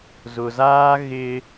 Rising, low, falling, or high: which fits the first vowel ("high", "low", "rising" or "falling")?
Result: low